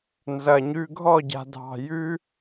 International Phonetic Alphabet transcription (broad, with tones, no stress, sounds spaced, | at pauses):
n z ɐ˨ ɲ ʉ˧ ɡʱ ɔ˦˨ ɟ a̤˨ dʱ ɑ̤˨ j ʉ˦